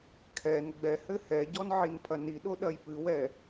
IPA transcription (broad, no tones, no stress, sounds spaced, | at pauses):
kʰ ɛ n ɡ͡b ɛ h ɘ h ɛ ɟ ɔ n ʕ i n pʰ ɐ n i ɗ o ɗ ɐ j p ɨ w ɛ